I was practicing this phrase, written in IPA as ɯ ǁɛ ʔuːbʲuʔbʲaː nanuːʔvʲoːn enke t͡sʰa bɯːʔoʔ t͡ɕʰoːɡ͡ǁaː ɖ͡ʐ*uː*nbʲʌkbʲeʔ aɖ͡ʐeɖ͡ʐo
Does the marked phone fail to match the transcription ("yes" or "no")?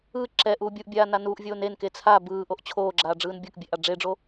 yes